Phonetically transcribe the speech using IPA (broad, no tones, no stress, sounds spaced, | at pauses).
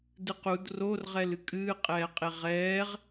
d ɨ q u d r o r ʁ ɛ l ɨ kʼ ɨː qʼ ɛː qʼ e ʁ ɛː ʁ